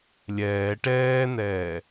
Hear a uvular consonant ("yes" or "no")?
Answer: no